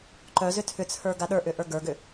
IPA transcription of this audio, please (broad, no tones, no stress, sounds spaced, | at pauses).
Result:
ǃ œ z ʏ tʰ ʏ t͡sʰ ə˞ ɡ a ɗ ə˞ ʔ ʏ ʔ ə˞ ɡ ə˞ ɡ ʏ